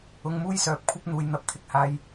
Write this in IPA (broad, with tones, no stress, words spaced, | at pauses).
ʊ˧ŋmuː˥jsœː˨˥p̚kʷʰɐ˥p̚ n̪uː˨˧jn̪ɐ˧p̚t̪ʰɪ˧k̚haː˧j